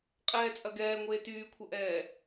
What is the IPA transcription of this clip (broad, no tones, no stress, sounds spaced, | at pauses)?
qʼ ɛː t͡sʼ ɐ ɡ ɛː ŋʷ eː t yː kʷʰ ɐ ʔ ɛː